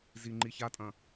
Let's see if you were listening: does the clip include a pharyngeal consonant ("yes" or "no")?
no